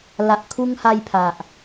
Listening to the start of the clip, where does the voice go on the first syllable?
low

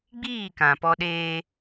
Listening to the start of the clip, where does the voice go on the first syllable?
falling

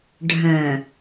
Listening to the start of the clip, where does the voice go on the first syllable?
low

